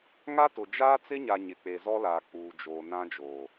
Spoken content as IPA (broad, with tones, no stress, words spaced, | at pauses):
ŋa˦tʊ˨ d͡ʒaː˦t͡sɪ˦ɲa˨ ɲɪ˨k͡pe˨zɔ˦laː˨ k͡puː˨d͡ʒoː˨nã˦d͡ʒoː˨